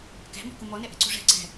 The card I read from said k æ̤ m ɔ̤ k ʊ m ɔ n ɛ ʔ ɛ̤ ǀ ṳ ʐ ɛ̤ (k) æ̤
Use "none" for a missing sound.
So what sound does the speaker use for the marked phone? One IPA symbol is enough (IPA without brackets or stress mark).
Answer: ǀ